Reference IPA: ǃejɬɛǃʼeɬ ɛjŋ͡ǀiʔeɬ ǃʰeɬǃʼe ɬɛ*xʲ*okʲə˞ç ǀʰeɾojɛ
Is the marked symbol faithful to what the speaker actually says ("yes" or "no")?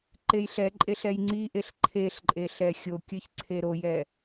yes